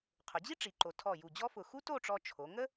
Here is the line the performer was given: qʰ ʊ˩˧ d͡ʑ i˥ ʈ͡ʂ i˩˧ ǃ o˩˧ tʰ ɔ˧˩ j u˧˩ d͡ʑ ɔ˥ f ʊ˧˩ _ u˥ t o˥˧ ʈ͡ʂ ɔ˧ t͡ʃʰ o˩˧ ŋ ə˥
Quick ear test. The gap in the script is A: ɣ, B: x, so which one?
B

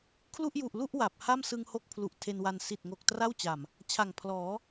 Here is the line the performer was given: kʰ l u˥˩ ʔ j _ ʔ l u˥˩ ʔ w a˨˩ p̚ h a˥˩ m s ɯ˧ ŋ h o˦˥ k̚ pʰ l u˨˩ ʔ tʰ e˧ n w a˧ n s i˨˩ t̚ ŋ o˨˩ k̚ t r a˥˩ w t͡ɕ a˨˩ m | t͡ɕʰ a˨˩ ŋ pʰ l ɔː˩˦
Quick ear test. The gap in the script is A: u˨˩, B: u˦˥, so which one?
A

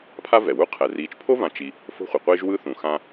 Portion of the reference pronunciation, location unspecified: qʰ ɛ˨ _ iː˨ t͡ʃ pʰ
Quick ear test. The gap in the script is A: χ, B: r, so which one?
B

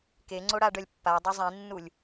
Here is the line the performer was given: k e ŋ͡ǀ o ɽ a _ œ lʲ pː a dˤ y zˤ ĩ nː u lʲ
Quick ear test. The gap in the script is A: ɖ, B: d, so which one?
A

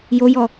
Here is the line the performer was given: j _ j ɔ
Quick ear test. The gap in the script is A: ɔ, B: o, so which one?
B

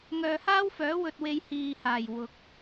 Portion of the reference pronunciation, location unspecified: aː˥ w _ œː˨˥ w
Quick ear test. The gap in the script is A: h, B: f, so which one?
B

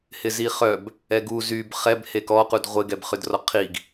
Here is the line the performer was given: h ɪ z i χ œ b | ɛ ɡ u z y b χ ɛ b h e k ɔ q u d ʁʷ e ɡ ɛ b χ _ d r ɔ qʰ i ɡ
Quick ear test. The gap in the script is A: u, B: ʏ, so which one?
B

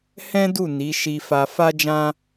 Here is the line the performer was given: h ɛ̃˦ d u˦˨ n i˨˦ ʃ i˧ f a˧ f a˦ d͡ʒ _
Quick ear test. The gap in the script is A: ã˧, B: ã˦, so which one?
B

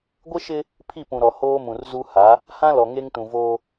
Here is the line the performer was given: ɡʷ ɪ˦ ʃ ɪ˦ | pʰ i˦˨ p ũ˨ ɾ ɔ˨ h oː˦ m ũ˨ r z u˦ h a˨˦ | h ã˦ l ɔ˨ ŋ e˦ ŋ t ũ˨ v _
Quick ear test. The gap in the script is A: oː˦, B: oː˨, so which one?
A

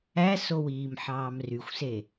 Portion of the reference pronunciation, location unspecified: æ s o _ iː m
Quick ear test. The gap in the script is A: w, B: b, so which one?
A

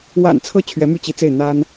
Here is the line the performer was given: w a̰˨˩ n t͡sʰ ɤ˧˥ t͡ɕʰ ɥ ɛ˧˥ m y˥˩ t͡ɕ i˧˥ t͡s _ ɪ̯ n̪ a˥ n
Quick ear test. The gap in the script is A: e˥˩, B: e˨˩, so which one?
A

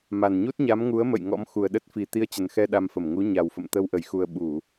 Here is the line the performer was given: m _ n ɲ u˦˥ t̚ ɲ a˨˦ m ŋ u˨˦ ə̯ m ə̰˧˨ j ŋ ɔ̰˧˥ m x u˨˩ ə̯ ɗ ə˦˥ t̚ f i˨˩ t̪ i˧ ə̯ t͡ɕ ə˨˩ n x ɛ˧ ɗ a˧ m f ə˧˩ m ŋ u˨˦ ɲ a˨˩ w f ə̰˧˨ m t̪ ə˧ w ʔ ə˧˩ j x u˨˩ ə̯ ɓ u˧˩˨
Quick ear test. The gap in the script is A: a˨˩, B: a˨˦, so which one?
A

